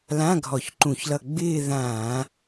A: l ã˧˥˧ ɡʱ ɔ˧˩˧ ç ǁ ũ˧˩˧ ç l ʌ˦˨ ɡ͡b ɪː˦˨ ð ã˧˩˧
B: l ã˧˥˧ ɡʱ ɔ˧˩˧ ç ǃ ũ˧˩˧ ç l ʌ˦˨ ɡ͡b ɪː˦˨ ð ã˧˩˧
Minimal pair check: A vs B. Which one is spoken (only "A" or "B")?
B